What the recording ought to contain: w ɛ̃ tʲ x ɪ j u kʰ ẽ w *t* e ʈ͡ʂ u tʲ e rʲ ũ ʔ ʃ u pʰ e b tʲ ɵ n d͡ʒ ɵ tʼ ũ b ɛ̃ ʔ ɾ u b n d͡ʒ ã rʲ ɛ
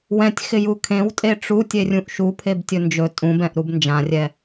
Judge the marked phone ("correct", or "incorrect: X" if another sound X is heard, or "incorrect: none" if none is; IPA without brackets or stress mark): incorrect: tʼ